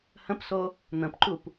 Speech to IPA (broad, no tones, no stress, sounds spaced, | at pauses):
h ə̃ p s o | n̪ ə̃ p ǃ u p